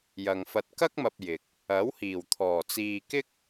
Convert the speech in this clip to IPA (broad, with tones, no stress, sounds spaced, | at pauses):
j ɐ˨ ŋ f ɐ˧ t̚ k ɐ˥ k̚ m ɐ˨ p̚ j ɪ˨ k̚ | ɐ˨˥ w h iː˨˩ w t̪ʰ ɔː˨˩ t͡s iː˨ k ɪ˥ k̚